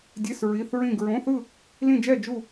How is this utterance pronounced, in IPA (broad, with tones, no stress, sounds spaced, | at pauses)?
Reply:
dʲ e˧˥˧ s ɹ i˧˥˧ θ ɹ ĩ˥˧ ɡ ɹ õ˧˥˧ θ ɯ˥˧ | l ĩ˥˧ d͡ʒ ɛ˥˧ d͡ʒ u˥˧